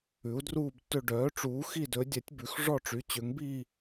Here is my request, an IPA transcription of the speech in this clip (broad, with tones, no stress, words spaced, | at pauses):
ʉ˨˥u̯druː˥˧btːɵ˥˧ ɖœː˨˥ʈ͡ʂuː˨˥ xi˥˧dɵ˨˥ dʲɛ˨˥tʲbʉ˨˥x ʐɔ˥˧ʈ͡ʂy˨˥ t͡ɕø˨˥ŋbi˥˧